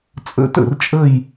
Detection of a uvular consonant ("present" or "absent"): absent